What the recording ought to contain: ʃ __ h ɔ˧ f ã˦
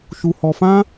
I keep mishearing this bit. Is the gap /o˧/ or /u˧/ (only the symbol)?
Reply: u˧